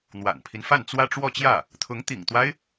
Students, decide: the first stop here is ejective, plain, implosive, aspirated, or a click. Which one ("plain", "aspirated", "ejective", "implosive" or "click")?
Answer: aspirated